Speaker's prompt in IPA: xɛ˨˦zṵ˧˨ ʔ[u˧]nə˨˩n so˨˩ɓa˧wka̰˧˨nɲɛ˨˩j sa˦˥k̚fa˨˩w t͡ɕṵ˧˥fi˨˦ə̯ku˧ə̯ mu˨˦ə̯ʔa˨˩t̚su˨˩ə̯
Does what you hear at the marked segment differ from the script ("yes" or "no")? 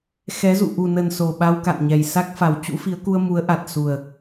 yes